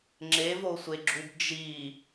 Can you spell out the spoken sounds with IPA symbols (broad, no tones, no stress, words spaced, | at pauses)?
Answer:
ŋ͡ǁevosʷeɡ͡ǁub d͡ʒi